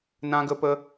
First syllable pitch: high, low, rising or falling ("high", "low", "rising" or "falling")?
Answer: high